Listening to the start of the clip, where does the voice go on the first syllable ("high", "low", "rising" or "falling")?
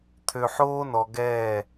low